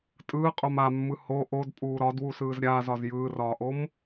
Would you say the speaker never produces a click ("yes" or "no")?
yes